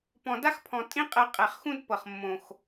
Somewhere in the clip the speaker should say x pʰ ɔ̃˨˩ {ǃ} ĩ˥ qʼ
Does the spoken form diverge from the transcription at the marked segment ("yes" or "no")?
yes